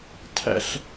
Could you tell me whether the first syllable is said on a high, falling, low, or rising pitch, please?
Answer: high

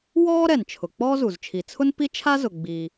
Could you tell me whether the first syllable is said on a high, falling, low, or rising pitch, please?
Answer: high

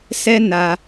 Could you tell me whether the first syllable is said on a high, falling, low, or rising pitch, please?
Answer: high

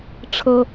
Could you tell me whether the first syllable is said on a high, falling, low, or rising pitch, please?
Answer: high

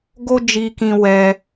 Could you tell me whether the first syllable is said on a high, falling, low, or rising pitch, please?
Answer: high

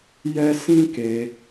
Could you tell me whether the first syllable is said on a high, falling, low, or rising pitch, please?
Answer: high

